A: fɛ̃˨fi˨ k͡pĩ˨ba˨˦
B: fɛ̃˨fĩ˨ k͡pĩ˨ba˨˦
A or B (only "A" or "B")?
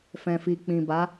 A